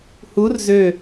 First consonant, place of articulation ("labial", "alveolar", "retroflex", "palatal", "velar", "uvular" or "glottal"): glottal